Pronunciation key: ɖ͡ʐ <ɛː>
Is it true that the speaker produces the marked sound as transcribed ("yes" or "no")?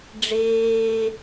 no